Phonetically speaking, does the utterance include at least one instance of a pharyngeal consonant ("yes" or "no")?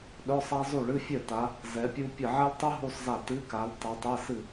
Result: yes